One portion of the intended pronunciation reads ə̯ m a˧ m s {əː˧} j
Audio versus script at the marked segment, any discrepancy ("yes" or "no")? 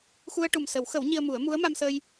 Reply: no